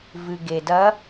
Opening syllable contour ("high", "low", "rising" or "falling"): low